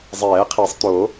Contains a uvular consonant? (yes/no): yes